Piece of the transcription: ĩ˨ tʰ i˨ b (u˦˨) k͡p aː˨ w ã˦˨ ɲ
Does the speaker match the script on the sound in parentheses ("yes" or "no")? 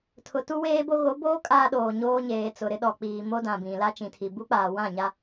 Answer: no